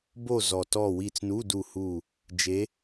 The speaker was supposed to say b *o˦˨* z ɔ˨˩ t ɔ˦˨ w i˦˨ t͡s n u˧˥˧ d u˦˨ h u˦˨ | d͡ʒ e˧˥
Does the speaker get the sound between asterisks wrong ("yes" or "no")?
no